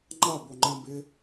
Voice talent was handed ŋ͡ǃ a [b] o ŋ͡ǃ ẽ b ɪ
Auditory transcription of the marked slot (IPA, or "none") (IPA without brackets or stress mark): b